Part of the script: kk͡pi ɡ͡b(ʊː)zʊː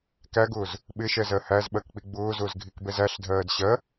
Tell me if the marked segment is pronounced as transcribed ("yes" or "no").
yes